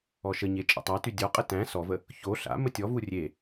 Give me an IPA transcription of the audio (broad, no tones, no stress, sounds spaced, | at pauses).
ɔ ʃ ə ɲ e t͡ʃʼ ə̰ tˤ a t y dʲ ɔ qʼ ə t æ̃ s ɔ v ə | ç o ɬ a̰ m ə tʲ ɔ v u rʲ e